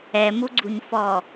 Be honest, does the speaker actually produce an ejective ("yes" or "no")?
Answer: no